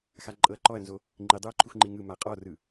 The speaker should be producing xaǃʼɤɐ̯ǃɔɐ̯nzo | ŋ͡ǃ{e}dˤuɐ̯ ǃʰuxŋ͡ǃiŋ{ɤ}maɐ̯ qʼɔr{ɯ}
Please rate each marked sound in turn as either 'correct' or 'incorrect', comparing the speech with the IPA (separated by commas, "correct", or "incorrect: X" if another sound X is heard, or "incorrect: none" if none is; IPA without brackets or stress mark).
incorrect: i, incorrect: ɯ, correct